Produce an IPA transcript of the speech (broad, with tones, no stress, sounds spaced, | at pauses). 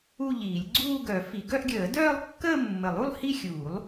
u˥˧ ʎ iː˨˩˦ lʲ ɡ͡ǀ uː˥˧ ɡ œ˨˩˦ f i˨˩˦ ɡ œ˥˧ ʔ ɡʲ əː˨˩˦ d œː˥˧ lˠ kː əː˥˧ mː ə˨˩˦ lˠ u˥˧ lˠ h i˥˧ xʲ uː˨˩˦ lˠ